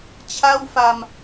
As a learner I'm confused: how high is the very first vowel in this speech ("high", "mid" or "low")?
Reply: low